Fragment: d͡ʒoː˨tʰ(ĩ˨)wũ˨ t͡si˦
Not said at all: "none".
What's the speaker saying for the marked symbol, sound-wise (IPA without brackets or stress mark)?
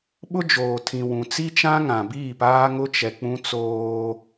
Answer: ĩ˨